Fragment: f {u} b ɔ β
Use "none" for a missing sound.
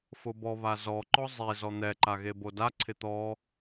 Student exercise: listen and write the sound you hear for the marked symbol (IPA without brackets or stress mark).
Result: ʊ